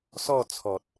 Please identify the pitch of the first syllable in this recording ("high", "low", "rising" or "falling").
falling